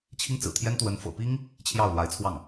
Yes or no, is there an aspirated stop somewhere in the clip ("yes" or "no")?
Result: yes